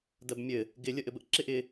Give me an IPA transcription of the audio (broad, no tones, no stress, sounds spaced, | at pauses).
d ɜ b mʲ ɘ | ɡ ɪ lʲ ə ʔ ɘ b ə ʔ ǁ ɪ ʔ ɪ